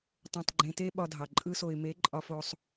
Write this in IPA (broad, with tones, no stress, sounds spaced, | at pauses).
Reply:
tˤ õ˧ tˤ ɡ͡ǃ ẽ˧ t e˦ ɓ ɒ˧ dʱ ɑ˨ ǃʼ ɯ˧ s o˨ ɪ̯ m e˨˦ ǃʼ ɒ˧ f o˧ sˤ